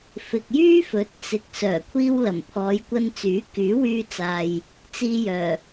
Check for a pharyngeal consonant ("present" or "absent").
absent